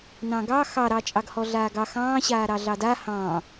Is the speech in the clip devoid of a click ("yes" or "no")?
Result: yes